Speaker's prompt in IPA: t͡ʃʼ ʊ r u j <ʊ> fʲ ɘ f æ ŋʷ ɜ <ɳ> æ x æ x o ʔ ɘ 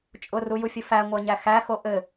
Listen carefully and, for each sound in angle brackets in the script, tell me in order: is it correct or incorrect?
incorrect: u, incorrect: ɲ

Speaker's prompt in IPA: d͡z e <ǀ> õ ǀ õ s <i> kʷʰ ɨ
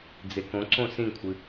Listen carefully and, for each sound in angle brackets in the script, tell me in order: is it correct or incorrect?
incorrect: k, incorrect: ĩ

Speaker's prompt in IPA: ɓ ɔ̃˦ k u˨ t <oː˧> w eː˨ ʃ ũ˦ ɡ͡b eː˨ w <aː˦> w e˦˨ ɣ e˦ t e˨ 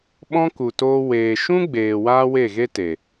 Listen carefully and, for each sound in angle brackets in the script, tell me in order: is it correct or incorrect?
correct, correct

